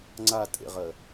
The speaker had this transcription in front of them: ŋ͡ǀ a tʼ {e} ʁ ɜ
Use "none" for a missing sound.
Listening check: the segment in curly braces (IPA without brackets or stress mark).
ḛ